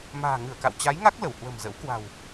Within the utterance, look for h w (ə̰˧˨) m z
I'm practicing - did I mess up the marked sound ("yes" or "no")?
yes